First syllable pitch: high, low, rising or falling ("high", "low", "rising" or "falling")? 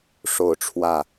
falling